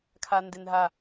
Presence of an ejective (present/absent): absent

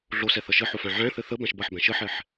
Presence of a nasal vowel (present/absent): present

